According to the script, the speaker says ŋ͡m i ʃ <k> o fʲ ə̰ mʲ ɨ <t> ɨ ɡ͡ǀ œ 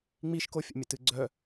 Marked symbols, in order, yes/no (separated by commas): yes, yes